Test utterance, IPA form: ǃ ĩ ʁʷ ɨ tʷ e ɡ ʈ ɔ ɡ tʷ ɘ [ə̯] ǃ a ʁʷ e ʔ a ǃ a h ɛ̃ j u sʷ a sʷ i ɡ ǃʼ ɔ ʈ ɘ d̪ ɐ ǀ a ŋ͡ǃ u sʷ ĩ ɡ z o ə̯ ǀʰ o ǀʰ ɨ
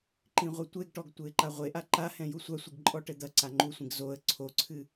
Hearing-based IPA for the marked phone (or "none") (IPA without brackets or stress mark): ɪ̯